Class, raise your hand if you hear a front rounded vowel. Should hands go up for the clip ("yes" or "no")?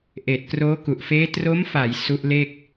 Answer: no